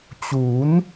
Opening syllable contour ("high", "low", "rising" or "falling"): rising